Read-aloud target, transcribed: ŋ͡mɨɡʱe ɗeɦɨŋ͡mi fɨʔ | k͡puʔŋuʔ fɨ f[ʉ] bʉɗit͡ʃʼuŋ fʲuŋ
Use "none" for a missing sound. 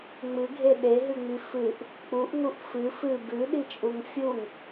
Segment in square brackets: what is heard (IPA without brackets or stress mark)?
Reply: ɨ